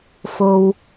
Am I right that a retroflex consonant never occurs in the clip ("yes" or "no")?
yes